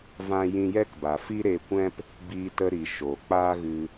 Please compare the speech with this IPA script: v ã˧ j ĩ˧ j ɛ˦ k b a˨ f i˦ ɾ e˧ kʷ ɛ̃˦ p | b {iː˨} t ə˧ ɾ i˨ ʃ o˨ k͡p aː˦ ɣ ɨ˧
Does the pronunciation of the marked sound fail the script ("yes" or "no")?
yes